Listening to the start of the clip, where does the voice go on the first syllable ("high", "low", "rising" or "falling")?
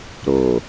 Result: low